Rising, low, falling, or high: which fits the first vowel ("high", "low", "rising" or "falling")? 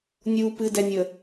low